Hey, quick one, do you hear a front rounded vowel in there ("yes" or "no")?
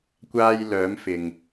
yes